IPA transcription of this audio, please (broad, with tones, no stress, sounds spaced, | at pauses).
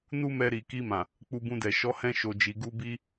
n u˦ m ɛ˧ ɾ i˨ k i˧ m ã˨ | k͡p u˧ b ũ˧ d ɛ˨ ʃ ɔ˨˦ h ɛ̃˧ ʃ o˨ d͡ʒ i˨ ɡ u˧ b i˧